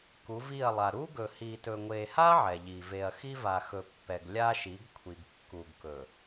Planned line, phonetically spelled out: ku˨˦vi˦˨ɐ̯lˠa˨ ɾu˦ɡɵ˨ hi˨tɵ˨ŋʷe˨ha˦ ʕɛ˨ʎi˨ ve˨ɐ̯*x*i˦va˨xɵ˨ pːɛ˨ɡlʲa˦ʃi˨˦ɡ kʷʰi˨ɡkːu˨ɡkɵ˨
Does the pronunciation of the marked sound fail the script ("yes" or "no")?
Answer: no